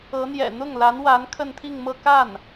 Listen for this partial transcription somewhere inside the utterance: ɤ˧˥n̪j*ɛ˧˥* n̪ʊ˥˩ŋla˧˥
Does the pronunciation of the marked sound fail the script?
yes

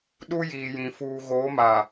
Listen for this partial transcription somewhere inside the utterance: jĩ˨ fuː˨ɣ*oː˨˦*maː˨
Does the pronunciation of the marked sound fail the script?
no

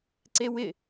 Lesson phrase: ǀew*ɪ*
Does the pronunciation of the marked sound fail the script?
no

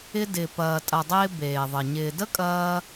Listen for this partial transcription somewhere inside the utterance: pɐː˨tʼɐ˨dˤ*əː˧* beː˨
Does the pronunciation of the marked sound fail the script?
yes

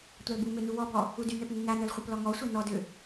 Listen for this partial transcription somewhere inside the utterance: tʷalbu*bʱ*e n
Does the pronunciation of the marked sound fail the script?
yes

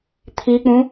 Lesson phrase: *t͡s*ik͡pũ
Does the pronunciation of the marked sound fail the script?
yes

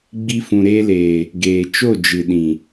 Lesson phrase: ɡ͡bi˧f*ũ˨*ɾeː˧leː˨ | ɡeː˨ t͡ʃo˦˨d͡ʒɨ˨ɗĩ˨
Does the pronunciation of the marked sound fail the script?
no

